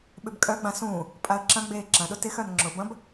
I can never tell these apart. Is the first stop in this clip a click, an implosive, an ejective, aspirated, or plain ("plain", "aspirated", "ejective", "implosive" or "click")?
implosive